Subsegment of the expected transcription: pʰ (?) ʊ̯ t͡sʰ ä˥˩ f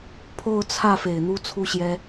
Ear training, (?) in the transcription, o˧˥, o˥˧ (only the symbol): o˥˧